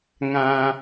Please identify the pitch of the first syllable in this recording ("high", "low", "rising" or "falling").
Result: low